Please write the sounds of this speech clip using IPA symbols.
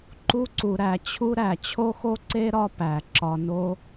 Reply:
ǃu˥ǀu˨ ɾæ˨t͡ɕʰu˥ ɾæ˩t͡ɕʰo˥xo˥ǀe˥ ɾɒ˦pæ˩ ǁɒ˨no˦

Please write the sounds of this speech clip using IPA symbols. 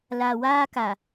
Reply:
la˨waː˦ka˨

